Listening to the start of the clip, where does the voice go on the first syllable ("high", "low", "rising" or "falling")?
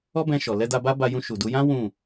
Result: high